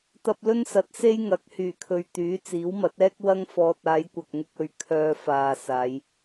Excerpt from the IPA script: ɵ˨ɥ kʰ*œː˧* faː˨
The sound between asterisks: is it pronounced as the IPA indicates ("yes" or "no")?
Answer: yes